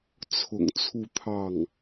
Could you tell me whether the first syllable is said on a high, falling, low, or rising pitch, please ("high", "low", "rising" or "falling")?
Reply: low